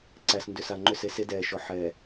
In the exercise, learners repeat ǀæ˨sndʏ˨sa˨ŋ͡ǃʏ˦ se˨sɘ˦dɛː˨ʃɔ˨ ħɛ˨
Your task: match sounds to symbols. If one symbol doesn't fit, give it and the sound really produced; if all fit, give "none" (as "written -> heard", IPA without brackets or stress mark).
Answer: ɘ˦ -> e˦